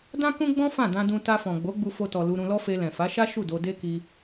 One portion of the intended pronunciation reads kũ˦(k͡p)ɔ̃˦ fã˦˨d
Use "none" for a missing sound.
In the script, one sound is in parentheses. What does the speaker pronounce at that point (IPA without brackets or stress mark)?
ɡ͡b